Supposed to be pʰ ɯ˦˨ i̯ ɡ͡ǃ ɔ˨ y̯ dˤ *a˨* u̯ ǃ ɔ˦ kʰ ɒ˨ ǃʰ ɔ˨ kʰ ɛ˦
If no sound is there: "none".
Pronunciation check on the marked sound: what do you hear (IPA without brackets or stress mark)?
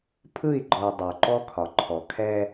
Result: ə˨